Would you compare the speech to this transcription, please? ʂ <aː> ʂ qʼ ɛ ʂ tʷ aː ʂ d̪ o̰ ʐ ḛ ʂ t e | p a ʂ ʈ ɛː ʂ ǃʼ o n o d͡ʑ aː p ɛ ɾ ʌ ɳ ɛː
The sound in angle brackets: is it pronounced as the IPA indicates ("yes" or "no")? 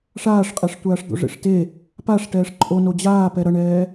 yes